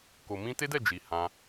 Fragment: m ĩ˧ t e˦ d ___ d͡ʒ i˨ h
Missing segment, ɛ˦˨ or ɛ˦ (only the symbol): ɛ˦˨